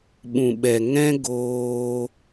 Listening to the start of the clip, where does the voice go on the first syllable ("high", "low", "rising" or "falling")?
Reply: low